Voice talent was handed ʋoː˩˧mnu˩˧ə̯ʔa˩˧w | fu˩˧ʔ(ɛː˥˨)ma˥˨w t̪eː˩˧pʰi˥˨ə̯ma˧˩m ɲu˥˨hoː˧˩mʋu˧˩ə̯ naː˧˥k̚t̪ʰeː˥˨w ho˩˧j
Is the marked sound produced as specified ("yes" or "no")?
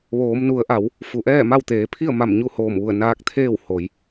yes